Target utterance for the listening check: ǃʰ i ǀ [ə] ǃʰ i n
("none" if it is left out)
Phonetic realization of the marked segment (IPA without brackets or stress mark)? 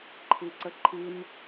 ə